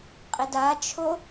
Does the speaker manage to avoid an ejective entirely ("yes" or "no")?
no